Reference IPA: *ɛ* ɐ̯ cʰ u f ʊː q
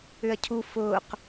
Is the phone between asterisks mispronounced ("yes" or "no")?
yes